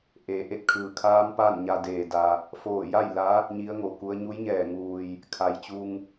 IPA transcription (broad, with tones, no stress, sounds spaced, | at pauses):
ʔ eː˩˧ ʔ e˧˩ t̚ kʰ ɯː˩ kʰ aː˧˥ m p aː˥˨ n ɲ a˧ d eː˩ d a˩ | f oː˧˩ j a˥˨ j l a˧˥ | ɲ i˧˥ ə̯ ŋ o˩ k u˧˥ ə̯ ɲ u˧˥ j ɲ ɛː˧˩ ŋ uː˩ j | kʰ a˩˧ j t͡ɕ u˧ ŋ